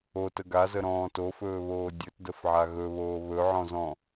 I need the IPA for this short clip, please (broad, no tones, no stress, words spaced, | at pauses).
otə ɡazəɾɔ̃ː tofɵːβoː dʲɵtdəfʕa ɣɵβoː βɵʕɔ̃zɔ̃